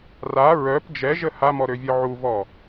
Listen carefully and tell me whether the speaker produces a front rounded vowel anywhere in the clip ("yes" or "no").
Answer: yes